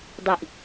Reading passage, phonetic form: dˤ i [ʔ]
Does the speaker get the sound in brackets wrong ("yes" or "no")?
no